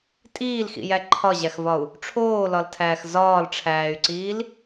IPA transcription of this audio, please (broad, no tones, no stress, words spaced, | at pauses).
tʼiːlxḭjæ ǃʰɒʑæxvɒu̯ | ʈ͡ʂʰoːlɒltʰæːx zɒːlʈ͡ʂʰæːy̯ǀiːl